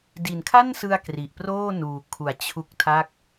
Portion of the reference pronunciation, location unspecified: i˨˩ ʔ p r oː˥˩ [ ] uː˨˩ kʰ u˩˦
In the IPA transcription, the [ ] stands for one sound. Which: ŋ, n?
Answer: n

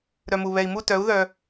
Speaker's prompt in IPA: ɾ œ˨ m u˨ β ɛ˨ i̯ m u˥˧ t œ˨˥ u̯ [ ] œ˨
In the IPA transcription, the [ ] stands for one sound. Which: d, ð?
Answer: ð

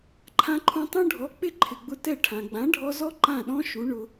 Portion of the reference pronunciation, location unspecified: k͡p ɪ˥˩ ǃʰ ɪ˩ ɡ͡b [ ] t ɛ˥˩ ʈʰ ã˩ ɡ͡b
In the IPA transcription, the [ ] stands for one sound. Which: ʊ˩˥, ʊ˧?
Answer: ʊ˧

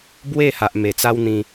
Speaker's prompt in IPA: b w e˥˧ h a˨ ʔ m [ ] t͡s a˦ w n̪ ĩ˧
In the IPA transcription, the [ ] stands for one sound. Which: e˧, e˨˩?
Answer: e˨˩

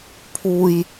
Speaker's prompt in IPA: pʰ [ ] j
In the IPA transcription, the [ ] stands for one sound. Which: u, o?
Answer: u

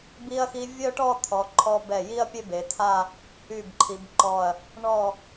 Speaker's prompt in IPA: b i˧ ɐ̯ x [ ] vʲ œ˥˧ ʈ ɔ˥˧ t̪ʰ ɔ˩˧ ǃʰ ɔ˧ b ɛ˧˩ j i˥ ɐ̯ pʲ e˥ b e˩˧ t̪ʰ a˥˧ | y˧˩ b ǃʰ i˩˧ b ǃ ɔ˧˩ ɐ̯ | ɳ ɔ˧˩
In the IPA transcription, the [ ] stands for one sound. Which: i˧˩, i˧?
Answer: i˧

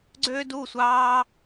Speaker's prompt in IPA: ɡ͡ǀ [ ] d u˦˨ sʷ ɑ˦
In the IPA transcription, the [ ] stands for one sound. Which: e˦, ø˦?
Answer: ø˦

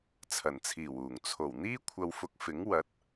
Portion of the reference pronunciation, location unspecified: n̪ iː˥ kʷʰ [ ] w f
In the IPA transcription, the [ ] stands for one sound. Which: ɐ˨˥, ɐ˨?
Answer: ɐ˨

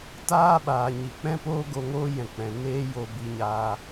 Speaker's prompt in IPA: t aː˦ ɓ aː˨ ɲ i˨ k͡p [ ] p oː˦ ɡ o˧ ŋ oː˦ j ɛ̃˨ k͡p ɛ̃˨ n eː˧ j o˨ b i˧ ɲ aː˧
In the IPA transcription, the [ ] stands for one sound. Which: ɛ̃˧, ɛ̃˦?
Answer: ɛ̃˦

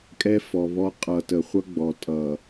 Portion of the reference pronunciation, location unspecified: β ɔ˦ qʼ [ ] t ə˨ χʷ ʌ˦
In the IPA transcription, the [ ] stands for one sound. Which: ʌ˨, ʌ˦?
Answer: ʌ˨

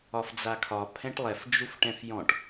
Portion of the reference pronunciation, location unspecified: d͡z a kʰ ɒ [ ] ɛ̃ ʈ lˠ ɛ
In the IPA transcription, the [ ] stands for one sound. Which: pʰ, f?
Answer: pʰ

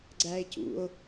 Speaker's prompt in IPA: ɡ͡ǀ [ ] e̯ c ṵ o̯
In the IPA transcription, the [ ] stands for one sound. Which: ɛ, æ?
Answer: æ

